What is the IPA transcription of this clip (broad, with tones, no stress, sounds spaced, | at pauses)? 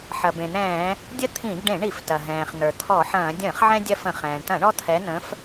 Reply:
ħ ɐ˩ b ẽ˩ n̪ ɛ̃ː˧˩˧ | dʲ ə˦ t̪ʰ ĩ˧˩˧ ɡ ɖ ẽ˧˩˧ ɳ i˧˩˧ f t ɐ˩ ɦ ɛ̃ː˩ χ n̪ ə˞˩ t̪ʰ ɔ˧˩˧ ħ ɐ̃ː˧˩˧ dʲ ə̃ː˧˩˧ χ ʕ ɛ̃˦ dʲ ɐ˦ f ə̃˧˩˧ χ ɛ̃ː˩ ɳ t ɐ̃˧˩˧ ɳ ɔ˦ t̪ʰ ɛ˨˦ n̪ ə̃˨˦ f